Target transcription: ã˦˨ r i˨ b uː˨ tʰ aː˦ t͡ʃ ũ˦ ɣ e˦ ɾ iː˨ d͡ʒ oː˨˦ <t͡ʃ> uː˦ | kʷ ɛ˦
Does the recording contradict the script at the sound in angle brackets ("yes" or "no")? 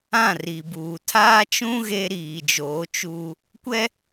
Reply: no